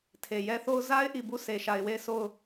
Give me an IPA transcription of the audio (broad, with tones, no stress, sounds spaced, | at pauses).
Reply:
tʰ e˨ j ɛ˦ θ o˦ ʊ̯ z a˦ ɪ̯ ʔ i˨ b u˦˨ s e˨ ʃ a˨ ɪ̯ w e˦˨ ɪ̯ sʰ o˦˨ ʊ̯